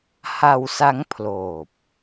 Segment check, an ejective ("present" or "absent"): absent